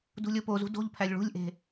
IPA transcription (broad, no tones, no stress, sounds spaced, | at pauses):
d ṳ lʲ o p o z ṳ d o̤ ʎ pʰ æ lʲ ɭ ṳ lʲ ʔ e̤